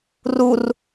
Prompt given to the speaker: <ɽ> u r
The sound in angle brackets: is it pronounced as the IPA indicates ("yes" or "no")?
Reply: no